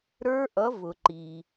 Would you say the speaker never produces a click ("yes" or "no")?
no